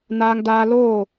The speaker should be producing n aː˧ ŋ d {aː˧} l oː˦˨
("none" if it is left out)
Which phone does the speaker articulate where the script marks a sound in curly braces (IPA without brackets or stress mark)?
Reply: aː˧